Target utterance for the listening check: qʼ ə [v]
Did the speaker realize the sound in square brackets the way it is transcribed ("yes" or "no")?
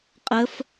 no